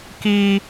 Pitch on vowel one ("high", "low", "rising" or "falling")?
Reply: high